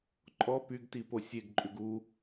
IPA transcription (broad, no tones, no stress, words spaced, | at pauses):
ǃʼɔ pyɡtipo sʲeɡǃʼʉɡ u